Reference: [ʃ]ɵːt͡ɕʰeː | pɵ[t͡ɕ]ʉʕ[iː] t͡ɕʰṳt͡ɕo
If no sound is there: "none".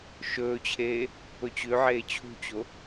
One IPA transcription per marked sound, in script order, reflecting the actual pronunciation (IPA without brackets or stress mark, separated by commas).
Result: ʃ, t͡ɕ, eː